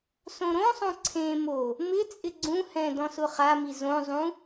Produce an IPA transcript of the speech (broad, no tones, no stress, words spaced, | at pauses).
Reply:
sõɾõsˤõ ǀʰẽmo | mɪ t͡sʼɪɡ͡ǀũhɛ̃ dɔ̃sʊχami zõzˤũ